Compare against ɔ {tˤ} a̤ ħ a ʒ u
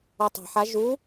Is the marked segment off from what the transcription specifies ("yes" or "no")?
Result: no